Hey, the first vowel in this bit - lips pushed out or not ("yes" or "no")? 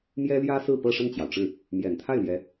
no